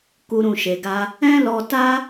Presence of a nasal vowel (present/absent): present